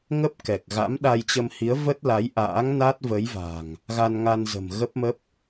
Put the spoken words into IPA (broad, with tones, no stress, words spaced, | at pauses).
ŋə˦˥p̚kɛ˨˩k̚ɣa̰˧˥m ɗa˧jt͡ɕə˧mhi˨˦ə̯ və˦˥t̚la˨˦jʔa̰ː˧˥ŋ na˦˥t̚ və˨˦jva̤˨˩ŋ | ɣa˧nŋa˧nzə̤˨˩m ɣə˦˥p̚mə˦˥p̚